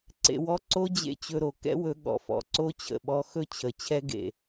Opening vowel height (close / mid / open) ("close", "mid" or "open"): mid